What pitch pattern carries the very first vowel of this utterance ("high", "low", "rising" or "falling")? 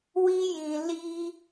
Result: high